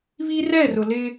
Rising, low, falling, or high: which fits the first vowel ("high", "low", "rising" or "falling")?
high